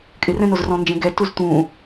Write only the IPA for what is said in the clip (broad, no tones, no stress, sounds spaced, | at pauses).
kʼ ɪ r ɛ̃ n o z r ɔ̃ n d͡ʒ ẽ ɡ ɛ t u z t̪ ũ